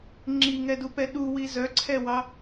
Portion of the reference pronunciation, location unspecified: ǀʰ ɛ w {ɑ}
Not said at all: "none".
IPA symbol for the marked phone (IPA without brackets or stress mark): ɑ